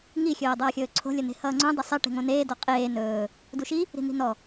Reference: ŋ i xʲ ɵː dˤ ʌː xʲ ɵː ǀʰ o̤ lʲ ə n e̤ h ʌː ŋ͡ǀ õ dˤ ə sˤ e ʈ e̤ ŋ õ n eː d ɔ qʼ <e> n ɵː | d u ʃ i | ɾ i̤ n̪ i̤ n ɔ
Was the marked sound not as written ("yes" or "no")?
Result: yes